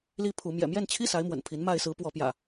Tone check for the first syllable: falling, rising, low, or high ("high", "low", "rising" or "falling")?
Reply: high